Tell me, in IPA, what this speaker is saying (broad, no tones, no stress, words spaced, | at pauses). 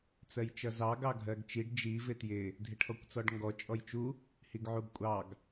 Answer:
t͡sɜjt͡ʃʌzɑ ɡɑɡʱɜɡt͡ʃiɖ d͡ʒi vɪtjɪ | dʱɪʈʰɔkʷt͡sɔɖŋɡɔ t͡ʃʼɔjt͡ʃu | hiɡʕuɡkʷʼɑɡ